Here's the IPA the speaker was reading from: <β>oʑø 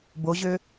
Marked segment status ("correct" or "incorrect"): incorrect